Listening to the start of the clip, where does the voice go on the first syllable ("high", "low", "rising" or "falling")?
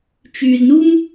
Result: low